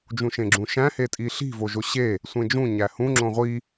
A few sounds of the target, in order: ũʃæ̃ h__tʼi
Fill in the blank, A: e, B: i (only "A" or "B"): A